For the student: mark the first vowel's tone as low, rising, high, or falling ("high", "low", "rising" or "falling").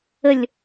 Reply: falling